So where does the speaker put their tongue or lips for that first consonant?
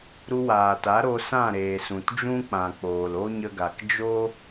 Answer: tongue tip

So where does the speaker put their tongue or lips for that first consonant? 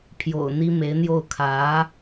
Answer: lips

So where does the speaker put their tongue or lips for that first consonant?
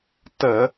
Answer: tongue tip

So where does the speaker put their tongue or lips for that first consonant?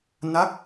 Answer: tongue tip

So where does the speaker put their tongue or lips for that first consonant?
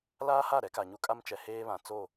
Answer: tongue tip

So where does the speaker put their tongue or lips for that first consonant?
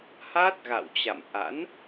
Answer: throat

